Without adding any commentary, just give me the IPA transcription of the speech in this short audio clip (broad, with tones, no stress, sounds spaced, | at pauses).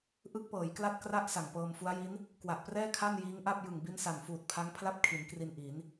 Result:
ʔ ɯ˦˥ k̚ p ɤː˩˦ j k l a˥˩ t̚ k r a˥˩ ʔ s a˨˩ ŋ p ɤː˧ m f u˦˥ a̯ j i˦˥ n | k w a˨˩ ʔ p r ɛː˥˩ kʰ a˥˩ n j iː˦˥ ŋ ʔ a˥˩ p̚ j ɯ˨˩ ŋ b i˦˥ n s a˨˩ n f uː˨˩ t̚ pʰ a˦˥ ŋ pʰ l a˥˩ p̚ kʰ i˩˦ n k r i˧ n ʔ i˩˦ n